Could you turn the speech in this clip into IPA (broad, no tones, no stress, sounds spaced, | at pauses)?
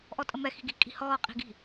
ʔ ɔ tʼ ə m ɛ x i̤ ɡ i̤ kʼ i̤ h ɔː qʼ i̤ ɡ i̤